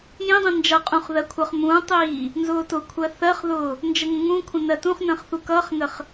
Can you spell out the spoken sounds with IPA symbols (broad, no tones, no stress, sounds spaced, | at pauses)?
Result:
j ĩ dˤ ĩ n d͡ʒ ʌ qʼ ũ χ ð ɜ kʷʰ ʌ χ m ũː tˤ iː | n z ʊː t ʊ kʷʰ ɜ θ ɜ χ ð ʊː | n d͡ʒ ə ŋ ə̃ ŋ ũ kʷʰ ə̃ n ɜ t ũ χ n ə̃ː χ θ u k ʌː χ ŋ ə χ